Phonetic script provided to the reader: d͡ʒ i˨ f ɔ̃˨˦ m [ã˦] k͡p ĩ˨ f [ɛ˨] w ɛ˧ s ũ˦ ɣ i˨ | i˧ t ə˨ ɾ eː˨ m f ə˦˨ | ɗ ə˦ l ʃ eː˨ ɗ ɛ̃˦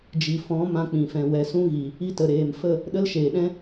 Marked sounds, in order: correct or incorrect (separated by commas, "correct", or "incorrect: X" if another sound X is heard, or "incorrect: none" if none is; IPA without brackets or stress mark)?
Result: correct, incorrect: ɛ̃˨